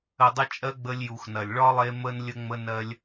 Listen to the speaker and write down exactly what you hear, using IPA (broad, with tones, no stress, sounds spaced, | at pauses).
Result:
ə˨ dˤ ə˧ t͡ʃʼ ɜ˧ ɡ͡b ə˧ lʲ j u˨ x n ɐ˨ lʲ ɭ ɒ˦ lˠ e˧ m ə˧ n lʲ ə˧ ŋ͡m ə˧ n ɜ˦ lʲ